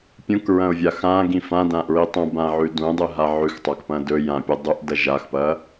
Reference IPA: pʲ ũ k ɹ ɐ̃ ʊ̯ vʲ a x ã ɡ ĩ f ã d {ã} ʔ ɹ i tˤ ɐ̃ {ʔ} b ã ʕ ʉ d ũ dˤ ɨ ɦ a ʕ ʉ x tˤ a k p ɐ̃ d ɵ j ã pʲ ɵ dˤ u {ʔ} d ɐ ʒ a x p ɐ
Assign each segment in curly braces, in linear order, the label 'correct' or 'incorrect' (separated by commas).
correct, incorrect, correct